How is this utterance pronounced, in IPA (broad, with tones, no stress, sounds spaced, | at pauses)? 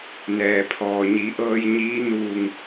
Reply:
n ɛː˩ pʰ ɔː˩ ɲ i˩˧ ʔ ɤː˧ j ɲ iː˧˥ n uː˧˩ ŋ